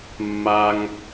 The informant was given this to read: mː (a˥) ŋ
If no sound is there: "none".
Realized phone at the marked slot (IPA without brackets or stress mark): a˥